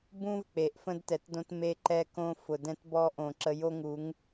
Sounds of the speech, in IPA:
bũ˦v k͡pe˨ʔfə̃˦dtɛ˨tdõ˦t me˦ǃɛ˦kõ˦ fʊ˨dɛ̃˦tbɔ˦ ʔõ˨ǁə˦ jo˦ŋu˨˦ŋ

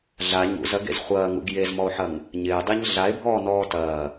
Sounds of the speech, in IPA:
ɮa ɲṵzɐɡḛz χʷɐːŋṵɡ jezmɔo̯ħɐŋ | ɲɪːdˤiɲ ɮae̯bʱɔːnɔː tɐː

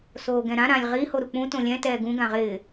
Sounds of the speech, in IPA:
soːɡɛ̃ɾã ɾãlʲʁi hoɾuk͡pũ tõlʲɛ̃ tɛːɡũ ɡãʁɪː

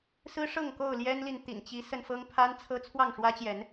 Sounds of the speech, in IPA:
sɹ̩˦ʂɤ˥˨ŋ ko˥˨ʊ̯ljɛ˦nli˨n t̪ḭ˨˩n t͡ɕi˨˦sə˧nfɤ˦ŋ pʰa˦nt͡sʰɤ˦ t͡sʰwɑ˥˨ŋʂwä˦t͡ɕjɛ˨˦n

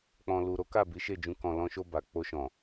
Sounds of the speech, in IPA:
k͡pɔ̃˨lu˨ ɾo˨˦ka˦˨ bi˨˦ʃe˦˨d͡ʒũ˧ kɔ̃˨lɔ̃˧ʃo˧ ba˨k͡po˧ʃɔ̃˨

